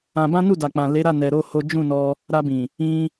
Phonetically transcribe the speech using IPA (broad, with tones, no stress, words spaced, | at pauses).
ã˧bã˦ nu˦˨da˨k͡pã˨ le˨˦ɾa˦˨nɛ˨ɾo˧ ho˦ d͡ʒũ˦˨nɔ˧ | ɾa˧bĩ˨ | ĩ˧